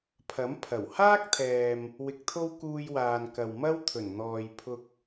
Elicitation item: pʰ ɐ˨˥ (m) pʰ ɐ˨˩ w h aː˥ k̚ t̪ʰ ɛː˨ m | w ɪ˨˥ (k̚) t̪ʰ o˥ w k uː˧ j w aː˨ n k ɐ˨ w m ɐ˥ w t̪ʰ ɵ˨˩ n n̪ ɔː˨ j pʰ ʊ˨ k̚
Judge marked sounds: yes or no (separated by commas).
yes, yes